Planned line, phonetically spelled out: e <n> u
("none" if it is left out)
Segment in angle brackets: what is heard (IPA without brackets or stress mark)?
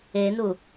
n